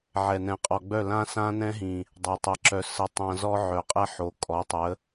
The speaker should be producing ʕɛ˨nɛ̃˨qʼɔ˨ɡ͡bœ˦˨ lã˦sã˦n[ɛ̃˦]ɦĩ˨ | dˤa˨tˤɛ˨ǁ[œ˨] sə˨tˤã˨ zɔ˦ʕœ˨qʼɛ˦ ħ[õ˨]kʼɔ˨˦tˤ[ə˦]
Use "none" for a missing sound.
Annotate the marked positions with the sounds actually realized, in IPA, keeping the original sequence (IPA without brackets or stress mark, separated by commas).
ɛ̃˦, œ˨, o˨, ə˨˦